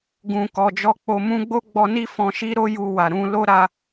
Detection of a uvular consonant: absent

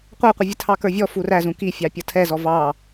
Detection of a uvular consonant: present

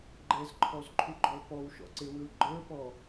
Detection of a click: present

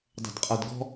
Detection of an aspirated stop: absent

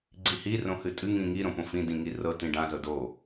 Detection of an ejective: present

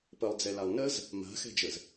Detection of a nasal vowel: absent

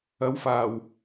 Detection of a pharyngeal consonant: absent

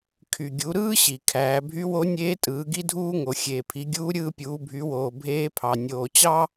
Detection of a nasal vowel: absent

